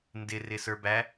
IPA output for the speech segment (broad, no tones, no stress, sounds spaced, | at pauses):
n d ɪ r ɪ s ə˞ b æ